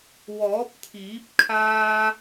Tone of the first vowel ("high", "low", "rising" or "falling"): rising